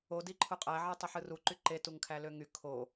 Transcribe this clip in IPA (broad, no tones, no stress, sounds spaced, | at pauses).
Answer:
o d i ǃʰ u qʼ æ ʕ e tˤ i ħ ɯ r u ǃ y ǃ e t u ŋ kʰ æ l ø ŋ y kʰ o